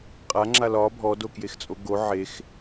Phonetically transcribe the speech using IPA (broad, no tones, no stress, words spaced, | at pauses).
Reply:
qʼaŋ͡ǁa lɒ bʱɔdokjext͡sʼo ɡo ʕex